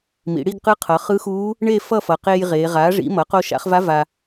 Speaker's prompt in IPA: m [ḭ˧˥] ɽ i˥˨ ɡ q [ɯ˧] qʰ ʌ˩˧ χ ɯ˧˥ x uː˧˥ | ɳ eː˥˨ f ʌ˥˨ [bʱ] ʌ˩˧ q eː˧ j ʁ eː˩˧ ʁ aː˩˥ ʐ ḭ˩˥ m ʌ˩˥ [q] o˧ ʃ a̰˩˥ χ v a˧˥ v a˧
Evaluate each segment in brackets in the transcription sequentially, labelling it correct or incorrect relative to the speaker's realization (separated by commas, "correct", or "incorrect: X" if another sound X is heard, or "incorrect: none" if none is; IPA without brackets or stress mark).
incorrect: ḭ˩˧, incorrect: ɯ˧˥, incorrect: f, correct